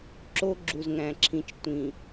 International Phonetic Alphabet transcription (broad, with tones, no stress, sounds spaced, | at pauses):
ǁ o˦ ɡ͡ǁ u˨ z ŋ æ̃˨ ǁʰ ĩ˨ t͡ʃ tʷ ĩ˨